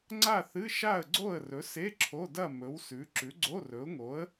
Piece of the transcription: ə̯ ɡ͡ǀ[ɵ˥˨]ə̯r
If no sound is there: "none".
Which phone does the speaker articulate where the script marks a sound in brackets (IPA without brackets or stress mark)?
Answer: o˥˨